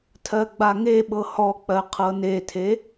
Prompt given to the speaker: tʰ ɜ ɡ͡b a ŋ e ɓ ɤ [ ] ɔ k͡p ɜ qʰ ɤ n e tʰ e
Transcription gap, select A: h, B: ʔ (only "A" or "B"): A